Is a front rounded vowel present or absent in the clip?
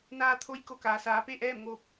absent